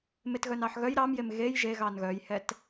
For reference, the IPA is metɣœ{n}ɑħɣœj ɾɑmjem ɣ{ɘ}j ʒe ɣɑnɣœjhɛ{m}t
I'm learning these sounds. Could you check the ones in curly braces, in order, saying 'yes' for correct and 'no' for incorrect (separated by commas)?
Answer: yes, no, no